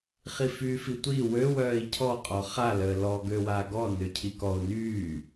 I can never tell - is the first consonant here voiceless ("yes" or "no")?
yes